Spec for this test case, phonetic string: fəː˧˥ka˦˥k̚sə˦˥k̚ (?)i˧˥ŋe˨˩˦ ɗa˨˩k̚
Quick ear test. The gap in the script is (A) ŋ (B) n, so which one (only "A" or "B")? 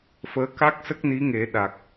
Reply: B